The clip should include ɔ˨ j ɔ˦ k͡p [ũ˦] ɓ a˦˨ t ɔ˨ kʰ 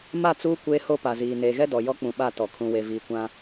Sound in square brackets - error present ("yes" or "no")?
yes